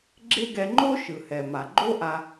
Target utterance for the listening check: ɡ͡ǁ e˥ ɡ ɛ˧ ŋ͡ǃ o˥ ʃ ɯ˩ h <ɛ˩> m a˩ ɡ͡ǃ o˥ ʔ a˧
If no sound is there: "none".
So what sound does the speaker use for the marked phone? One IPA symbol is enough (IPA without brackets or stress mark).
ɛ˩